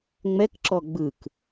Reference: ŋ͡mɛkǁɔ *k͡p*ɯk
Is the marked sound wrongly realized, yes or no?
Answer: yes